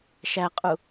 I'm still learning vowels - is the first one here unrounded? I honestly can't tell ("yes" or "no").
yes